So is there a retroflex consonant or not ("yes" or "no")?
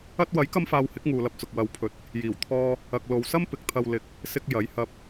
no